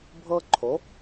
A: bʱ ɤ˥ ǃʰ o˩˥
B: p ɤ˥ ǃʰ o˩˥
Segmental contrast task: A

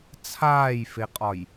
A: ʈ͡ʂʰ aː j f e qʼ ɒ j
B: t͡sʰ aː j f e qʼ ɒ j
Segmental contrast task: B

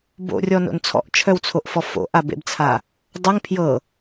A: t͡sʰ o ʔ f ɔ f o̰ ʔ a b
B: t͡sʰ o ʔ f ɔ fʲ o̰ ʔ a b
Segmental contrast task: A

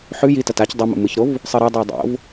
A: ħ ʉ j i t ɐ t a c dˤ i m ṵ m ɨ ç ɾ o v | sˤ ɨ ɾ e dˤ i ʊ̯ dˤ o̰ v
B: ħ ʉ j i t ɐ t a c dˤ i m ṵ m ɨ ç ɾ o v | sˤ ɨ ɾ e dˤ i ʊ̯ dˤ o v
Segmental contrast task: A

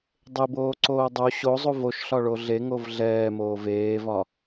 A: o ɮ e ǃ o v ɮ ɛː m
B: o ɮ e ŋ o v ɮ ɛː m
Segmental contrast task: B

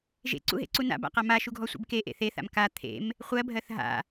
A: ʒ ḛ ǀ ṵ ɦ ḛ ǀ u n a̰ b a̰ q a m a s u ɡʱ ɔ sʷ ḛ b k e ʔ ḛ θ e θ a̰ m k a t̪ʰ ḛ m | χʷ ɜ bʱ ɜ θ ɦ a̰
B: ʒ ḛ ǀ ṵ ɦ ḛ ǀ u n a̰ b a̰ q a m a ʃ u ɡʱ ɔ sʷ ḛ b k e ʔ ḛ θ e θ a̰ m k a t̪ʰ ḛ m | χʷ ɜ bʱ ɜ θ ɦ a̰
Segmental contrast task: B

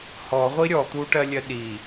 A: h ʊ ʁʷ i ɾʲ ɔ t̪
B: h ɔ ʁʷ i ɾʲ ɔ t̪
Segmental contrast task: B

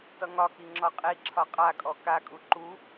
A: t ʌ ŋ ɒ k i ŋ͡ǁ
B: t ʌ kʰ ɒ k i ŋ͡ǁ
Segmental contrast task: A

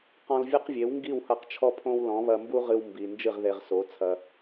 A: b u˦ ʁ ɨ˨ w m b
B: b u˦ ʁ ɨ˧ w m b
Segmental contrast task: B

